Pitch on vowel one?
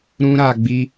high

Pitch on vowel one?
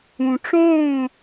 low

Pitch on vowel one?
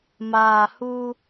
low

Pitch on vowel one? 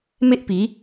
high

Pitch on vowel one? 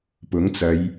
rising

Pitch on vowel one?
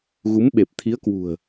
rising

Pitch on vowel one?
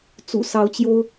low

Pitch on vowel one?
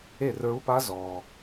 falling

